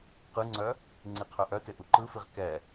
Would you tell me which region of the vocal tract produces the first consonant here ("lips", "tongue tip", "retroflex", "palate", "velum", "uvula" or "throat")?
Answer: uvula